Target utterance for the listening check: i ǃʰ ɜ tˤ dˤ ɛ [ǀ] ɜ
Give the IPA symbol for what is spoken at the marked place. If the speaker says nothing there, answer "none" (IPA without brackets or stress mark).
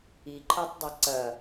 ǀ